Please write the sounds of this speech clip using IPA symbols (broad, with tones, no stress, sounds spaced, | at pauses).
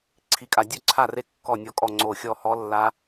ǀʰ i˦˥ kʼ a˦˥ dʲ ø˥˧ ǀʰ a˥˧ r e˦˥ kː ɔ˥˧ nʲ ɔ˦˥ kʼ ɔ˥˧ ŋ͡ǀ o˥˧ xʲ ɔ˥˧ h ɔ˦˥ lː a˦˥